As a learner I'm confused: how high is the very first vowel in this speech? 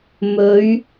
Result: mid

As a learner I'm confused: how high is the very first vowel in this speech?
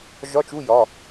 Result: low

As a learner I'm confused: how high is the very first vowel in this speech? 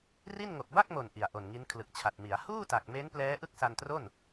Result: high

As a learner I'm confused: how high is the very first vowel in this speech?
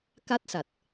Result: low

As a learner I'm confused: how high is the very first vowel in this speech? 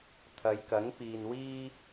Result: low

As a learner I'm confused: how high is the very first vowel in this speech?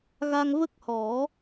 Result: low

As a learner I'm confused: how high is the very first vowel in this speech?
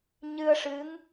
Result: high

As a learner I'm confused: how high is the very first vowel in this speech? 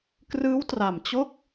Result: high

